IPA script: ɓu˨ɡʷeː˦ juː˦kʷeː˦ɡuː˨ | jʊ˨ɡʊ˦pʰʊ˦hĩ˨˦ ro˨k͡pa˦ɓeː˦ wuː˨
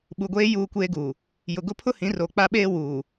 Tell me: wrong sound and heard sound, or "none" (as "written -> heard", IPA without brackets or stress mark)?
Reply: none